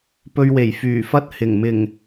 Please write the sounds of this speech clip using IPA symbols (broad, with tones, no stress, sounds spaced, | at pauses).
p ɵ˧ ɥ w e˨˩ j f yː˨˩ f ɐ˥ t̚ h ɪ˨˩ ŋ m ɪ˨˩ ŋ